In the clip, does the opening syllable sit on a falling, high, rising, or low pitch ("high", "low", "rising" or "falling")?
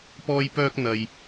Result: high